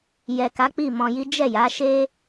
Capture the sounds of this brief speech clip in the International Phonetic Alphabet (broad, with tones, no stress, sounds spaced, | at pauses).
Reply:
j ɛ˨ k a˨˦ k͡p i˦˨ m ɔ̃˧ j i˦ d͡ʒ ɛ˦˨ j a˨˦ ʃ e˦